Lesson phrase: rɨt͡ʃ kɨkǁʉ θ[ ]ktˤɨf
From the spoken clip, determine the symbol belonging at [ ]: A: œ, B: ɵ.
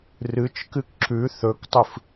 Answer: B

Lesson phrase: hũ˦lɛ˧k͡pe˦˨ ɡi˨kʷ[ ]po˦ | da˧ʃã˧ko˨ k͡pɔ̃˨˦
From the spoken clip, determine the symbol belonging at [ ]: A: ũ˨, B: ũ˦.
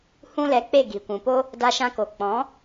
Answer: A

